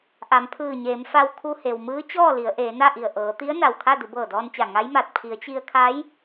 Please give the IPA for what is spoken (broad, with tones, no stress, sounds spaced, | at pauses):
ʔ a˩˧ m pʰ ɯː˧˩ ɲ eː˩˧ m f a˧ w kʰ u˧ h e˩ w m ɯː˧˥ t͡ɕ ɔː˥˨ l i˩˧ ə̯ ʔ eː˩˧ n a˥˨ ʔ i˧˩ ə̯ ʔ ɤː˩˧ t̪ i˧˥ ə̯ n a˧˩ w kʰ a˥˨ d u˩˧ b ɤː˧˩ d ɔː˧ n t͡ɕ a˧˩ ŋ a˧˥ j m a˧˩ t̚ pʰ i˩˧ ə̯ t͡ɕ i˧ ə̯ kʰ a˧˥ j